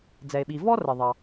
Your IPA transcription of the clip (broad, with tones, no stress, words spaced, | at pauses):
d͡zɛ˩e̯ɓi˩ vɔ˥ rə˩ ðˤɑ˩